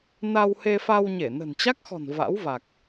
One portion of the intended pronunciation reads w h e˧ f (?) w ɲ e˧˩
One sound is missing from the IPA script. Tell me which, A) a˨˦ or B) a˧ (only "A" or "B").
B